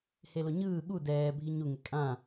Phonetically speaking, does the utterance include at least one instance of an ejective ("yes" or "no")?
yes